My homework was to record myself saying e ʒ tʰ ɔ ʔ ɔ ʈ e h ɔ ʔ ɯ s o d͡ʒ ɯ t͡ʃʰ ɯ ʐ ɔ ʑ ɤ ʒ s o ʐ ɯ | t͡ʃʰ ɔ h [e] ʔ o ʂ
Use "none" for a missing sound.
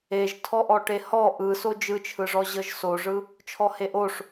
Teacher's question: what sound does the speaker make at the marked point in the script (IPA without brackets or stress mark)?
e